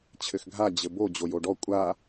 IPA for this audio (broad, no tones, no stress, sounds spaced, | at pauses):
t͡ɕʰ ɘ x ɡʱ a d͡ʑ ɘ b o d͡ʑ o j o ɖ ɔ kʷʼ a